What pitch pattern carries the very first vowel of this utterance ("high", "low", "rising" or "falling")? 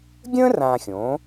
high